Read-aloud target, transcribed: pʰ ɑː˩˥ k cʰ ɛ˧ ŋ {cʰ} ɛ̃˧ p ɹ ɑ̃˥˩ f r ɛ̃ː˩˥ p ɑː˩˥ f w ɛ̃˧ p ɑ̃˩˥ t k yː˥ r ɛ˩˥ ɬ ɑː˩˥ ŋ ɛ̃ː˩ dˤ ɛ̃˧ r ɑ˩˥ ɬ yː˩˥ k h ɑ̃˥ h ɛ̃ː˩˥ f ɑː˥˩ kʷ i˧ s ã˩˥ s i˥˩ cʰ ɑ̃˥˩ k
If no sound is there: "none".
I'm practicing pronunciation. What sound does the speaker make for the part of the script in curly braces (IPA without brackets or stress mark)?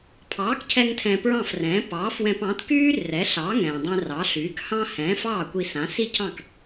tʰ